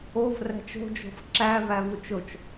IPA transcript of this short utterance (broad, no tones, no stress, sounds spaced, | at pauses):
o v r æ̤ t͡ʃ o̤ d͡ʒ o̤ f ǁ æ v æ v u t͡ʃ o t͡ʃ